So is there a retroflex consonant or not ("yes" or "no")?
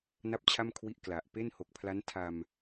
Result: no